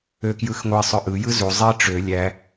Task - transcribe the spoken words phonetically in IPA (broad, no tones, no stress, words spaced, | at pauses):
økjɯxŋʷe sˤøʔɯ jɯzu zˤi ʈ͡ʂø lʲæ